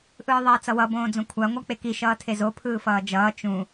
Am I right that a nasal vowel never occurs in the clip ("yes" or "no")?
no